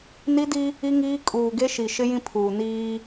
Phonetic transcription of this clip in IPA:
n i˦ d i˦ | i˦ ŋ iː˦ kʼ uː˨ ɡ e˦ ʃ i˨ ʃ ɪ˦ j ĩ˦ pʰ uː˨ n iː˦

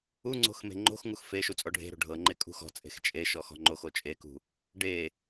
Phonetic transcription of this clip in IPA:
u ŋ͡ǀ o̤ x m e̤ ŋ͡ǃ o̤ x ŋ u x f e ʃ u t͡sʼ ɔ ɖʱ e̤ ɾ o̤ ɖʱ ɤ ŋ͡ǃ e kʼ ṳ x ɔ̤ t͡sʼ e̤ x t͡ʃʼ e ʃ ɔ x ɔ̤ ŋ͡ǃ o x o t͡ʃʼ e k ṳ | ɖ e

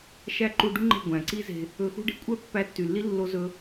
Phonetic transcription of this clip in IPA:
ʃ æ˦ ǃ u˧ ɖ u˦ ŋ͡ǃ e̤˦˨ ɡʷ æ̃˨ ǀ i˦ z e̤˧ | ɵ˧ x ṳ˦ ɖ e̤˧ kʷʼ œ˦ pː æ˧ tː y˨ lː i˦ lː o˦ z ɵ˦

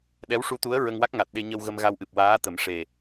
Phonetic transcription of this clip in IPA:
ɗ ɛ˧˥ w ʂ u˧˥ t̪ u˧˥ ə̯ ɹ ə˧ ŋ w a˦˥ k̚ ŋ a˨˩ t̚ ɗ e˧ ɲ ə˧ w ɣ ə˧ m ɣ a˧ w ʔ ɨ˨˩ p̚ w aː˧˥ t̪ ə˨˩˦ m ʂ e˨˩

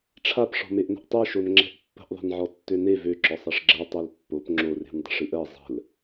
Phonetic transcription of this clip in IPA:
ʈ͡ʂʰ a p ʂ ɔ̤ m e ʔ n ə̤ ʔ tˤ e ʃ o n ŋ͡ǁ ɛ̤ ʔ pː ə̤ ʔ ðˤ ɛ̤ n ʕ ɔ tː ø n e v ø ǁ ɔ sˤ ɛ ʂ ɡ͡ǁ ɜ tˤ ø l pː o p ŋ͡ǁ o r e̤ n dˤ ə̤ ʂ ɨ ʔ ɜ zˤ ə̤ l

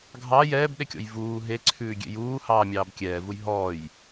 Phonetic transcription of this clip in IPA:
ɡʱ ɑ j ɛː b ɗ e kʲ ɔ̰ j v uː ɦ e ǀʰ ʉː ɡʲ ḛ j uː h ɑː mʲ ɑː b kʲ ɛː v u j ɦ ɔː j

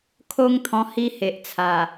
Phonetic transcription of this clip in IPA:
kʰ o˦ ŋ t̪ʰ ɔ̃˧ h i˦ h e˨ ʔ t͡sʰ a˨˩

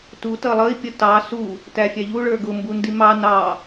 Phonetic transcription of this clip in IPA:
t u t ʌ lˠ ʌ i̯ pʲ ə t ɑ s u | t æ fʲ æ ʎ u ɭ ə˞ ɡ ʊ m b u n d i m ɑ n ɑ

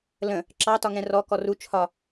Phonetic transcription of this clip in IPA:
l ə̃ | ǁ ɑ t ɒ ŋ ɛ̃ r ɔ k ɔ r u t͡ʃʰ ɒ

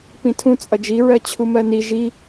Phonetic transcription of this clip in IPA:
p ĩ tʰ ũ t͡sʼ ʌ d͡ʒ i ɹ ɜ t͡ɕʰ u m ɜ n i ʒ i

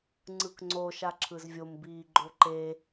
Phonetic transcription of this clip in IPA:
ŋ͡ǀ ɯ k ŋ͡ǀ o ʃ a ǁʰ ɯ z vʲ o m b iː ɡ͡ǃ o ǃ e

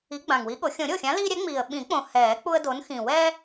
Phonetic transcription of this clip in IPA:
i˨˥ ɡ͡b ã˨˩ ŋ w i˨˥ ɠ o˨˩˦ xʲ õ˨˩˦ ɾʲ o˥˩ xʲ ã˨˥ l iː˦ ɾʲ ɛ˨˥ ŋ͡m iː˨˩ ə̯ ɓ ĩ˨˩˦ k͡p õ˨˩ h ɛː˨˩˦ k͡p u˦ ə̯ d o˨˥ n x ĩ˨˩ w ɛː˦

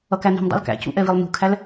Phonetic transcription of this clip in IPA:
ʌ k æ n e̤ m dˤ a̰ l k æ̰ c ṵ ʔ ɛ v i lˠ n ṳ kʰ æ l

